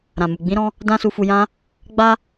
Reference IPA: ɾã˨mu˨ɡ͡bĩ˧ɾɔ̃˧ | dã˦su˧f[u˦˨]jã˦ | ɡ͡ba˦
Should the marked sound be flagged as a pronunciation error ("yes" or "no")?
yes